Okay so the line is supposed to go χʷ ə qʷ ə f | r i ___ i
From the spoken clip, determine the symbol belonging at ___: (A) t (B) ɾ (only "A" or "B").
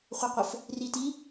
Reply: A